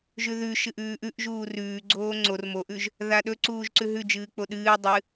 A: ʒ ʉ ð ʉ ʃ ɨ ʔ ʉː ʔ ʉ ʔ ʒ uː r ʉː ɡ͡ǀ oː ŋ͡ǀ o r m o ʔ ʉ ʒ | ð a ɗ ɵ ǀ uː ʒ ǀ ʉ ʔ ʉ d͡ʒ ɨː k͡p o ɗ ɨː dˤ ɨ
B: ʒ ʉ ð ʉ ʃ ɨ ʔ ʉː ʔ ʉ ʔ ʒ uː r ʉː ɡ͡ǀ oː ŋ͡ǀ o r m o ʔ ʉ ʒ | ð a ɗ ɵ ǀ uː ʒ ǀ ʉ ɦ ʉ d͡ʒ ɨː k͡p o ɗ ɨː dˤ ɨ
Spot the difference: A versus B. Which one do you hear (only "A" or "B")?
B